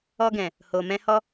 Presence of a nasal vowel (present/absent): present